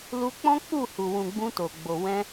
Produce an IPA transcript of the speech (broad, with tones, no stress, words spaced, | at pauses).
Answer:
lu˧k͡pɔ̃˦ k͡pu˦˨hu˨wũ˨ ɡ͡bũ˧to˨ɡ͡bo˨ wɛ̃˧